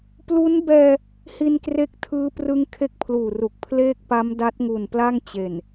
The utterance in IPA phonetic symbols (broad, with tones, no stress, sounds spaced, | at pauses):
p l u˦˥ n b ɛː˧ | h i˧ n k r e˦˥ k̚ tʰ ɯː˦˥ p r ɯ˦˥ ŋ kʰ e˥˩ k̚ pʰ l uː˨˩ r u˨˩ k̚ pʰ l eː˥˩ k̚ p a˦˥ m d a˦˥ t̚ ŋ u˨˩ n p l a˥˩ ŋ t͡ɕ e˨˩ n